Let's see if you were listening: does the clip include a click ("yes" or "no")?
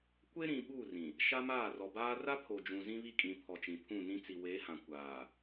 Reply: no